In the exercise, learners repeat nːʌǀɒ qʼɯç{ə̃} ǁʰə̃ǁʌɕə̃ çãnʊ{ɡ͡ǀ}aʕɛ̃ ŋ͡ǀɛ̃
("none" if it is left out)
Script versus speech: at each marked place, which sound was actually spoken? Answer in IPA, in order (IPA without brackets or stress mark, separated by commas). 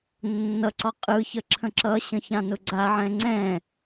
ə, ɡ͡ǀ